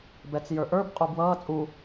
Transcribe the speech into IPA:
bɛt͡sjə˞ʔə˞b qʼubwʌː t͡sʼu

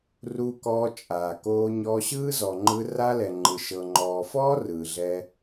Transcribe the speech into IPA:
ru˧kɔː˧ t͡ʃʼaː˨koː˧ɲɔ˧ ɕɯː˦zɔ˨ŋ͡ǃɯ˧ ra˦lɛ˨ŋ͡ǃɯ˨ʃɤ˨ ŋ͡ǃɔː˨fɔː˦ rɯː˨ɮɛː˧

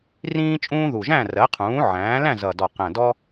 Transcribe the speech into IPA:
rĩː˦t͡ʃʼũː˦ðu˨˩ʒæ̃˥˨ rɜ˩˥qʰũː˩˥ʕæ̃ː˩˥ læ̃˥˨zʌ˨˩dɔ˨˩ qæ̃˨˩ dɔ˦

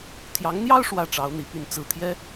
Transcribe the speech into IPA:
t̪ʰjɑ˧˥ŋn̪jɑ˥ʊ̯ ʂwä˥˩ ʈ͡ʂɑ˧˥ʊ̯ n̪ḭ˨˩py˥˧n t͡sɹ̩˥˩t̪ʰjɛ˥

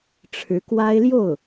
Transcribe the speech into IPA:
ʈ͡ʂʰɻ̩˧˥kwa˥ɪ̯ljo˥˩ʊ̯

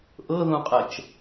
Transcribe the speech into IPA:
ʔɤðũqʼɛt͡ʃ

